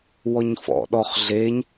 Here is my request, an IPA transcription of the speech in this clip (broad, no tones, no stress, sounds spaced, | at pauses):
w ɔ ɲ f ɔ̰ ɗ ɔ χ ɮ e ɲ